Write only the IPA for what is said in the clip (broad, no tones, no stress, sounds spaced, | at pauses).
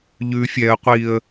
ʎ ʉ fʲ ɛ ə̯ qʷ i ə̯